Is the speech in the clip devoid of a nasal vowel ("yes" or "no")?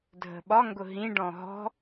no